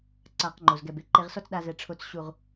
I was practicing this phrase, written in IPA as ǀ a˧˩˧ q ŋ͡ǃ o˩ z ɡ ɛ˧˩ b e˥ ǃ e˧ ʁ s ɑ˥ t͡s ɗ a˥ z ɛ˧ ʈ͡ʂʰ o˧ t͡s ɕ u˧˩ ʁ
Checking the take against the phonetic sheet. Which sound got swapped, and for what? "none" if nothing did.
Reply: ɑ˥ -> ɔ˥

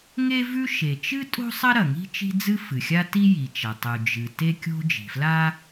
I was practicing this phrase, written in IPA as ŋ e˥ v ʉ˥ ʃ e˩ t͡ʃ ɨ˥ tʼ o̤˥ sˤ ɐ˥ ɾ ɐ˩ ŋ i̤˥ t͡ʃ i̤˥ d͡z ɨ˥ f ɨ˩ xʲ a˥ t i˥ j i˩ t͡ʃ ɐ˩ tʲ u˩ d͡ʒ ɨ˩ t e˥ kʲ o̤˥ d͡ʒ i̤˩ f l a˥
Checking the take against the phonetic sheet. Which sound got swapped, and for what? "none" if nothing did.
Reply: tʲ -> tˤ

